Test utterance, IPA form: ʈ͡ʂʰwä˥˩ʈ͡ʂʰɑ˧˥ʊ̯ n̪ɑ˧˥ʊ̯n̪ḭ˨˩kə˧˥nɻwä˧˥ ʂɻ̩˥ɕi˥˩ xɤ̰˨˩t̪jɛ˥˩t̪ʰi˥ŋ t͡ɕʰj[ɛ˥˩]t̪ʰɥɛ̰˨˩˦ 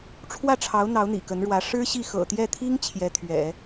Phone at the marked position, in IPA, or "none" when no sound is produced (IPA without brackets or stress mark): ɛ˥